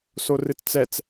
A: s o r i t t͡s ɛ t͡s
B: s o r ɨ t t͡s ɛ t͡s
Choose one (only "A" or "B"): B